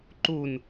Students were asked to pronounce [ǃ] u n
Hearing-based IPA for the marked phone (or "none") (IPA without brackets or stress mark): ǃ